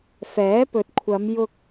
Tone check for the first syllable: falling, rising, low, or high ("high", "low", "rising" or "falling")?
rising